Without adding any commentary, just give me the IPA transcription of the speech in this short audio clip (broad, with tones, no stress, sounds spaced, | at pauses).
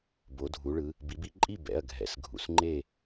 b o˩˧ dʱ u˩˧ ɭ ɯ˩˧ | b i˩˧ b i˩˧ ǃʼ i˥˨ b ɛ̰˩˧˩ ɐ̯ ɡʱ ɛ̰˩˥ s ɡʱ ṵ˩˧˩ s ŋ͡ǃ e˥˨